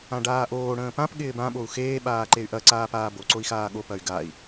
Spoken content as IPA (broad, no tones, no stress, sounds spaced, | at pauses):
ã ɖ aː ʔ oː ɽ ə̃ː p ã p ɠ ɪː b ã ɓ o u̯ x eː ɓ aː ǃ e y̯ ʔ ɐ ǀ aː p aː b o ǀ o i̯ x aː ɠ o p ɐ y̯ ɡ a i̯